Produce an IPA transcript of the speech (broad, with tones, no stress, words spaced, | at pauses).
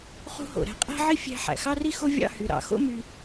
χṳ˧ho̰˩ ɾæ̤˧qʼæ̤˥ʕi˥ fʲæ̤˧ ħæ̰˩xɑ˥ri˥xo˥ vʲɑ̰˧hy˩ ɾɑ̰˩xo̰˥my˧